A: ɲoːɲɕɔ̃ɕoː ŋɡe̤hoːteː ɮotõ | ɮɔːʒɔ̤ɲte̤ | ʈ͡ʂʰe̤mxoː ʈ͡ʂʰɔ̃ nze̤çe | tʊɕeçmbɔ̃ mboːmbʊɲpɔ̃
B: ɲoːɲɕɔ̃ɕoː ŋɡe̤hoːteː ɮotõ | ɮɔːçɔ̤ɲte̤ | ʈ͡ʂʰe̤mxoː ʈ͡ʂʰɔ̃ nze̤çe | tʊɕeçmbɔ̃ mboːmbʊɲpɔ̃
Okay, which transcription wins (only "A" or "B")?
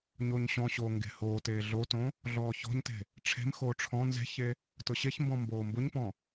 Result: B